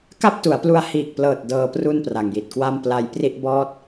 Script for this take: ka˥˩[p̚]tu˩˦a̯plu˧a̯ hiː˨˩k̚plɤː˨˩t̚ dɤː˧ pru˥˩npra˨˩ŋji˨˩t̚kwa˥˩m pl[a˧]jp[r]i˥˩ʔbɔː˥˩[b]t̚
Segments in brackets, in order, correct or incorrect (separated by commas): correct, correct, correct, incorrect